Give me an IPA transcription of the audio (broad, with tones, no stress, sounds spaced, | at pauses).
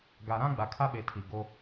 ɡ a˨ ɾ ã˦ ɡ͡b a˨ kʰ a˦ ɓ e˨ tʰ i˨ ɡ o˦